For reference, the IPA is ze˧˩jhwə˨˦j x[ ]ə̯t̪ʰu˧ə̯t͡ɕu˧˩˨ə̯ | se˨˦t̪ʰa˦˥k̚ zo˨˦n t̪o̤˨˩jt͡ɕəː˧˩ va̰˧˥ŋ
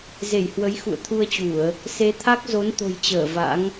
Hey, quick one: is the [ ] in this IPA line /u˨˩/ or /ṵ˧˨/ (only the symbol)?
ṵ˧˨